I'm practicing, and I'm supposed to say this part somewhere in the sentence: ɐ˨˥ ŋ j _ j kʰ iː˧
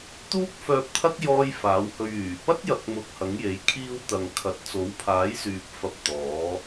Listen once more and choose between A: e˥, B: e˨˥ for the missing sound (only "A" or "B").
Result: B